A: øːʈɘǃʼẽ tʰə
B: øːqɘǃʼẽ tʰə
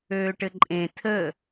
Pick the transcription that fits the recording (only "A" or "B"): A